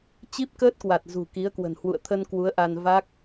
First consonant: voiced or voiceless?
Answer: voiceless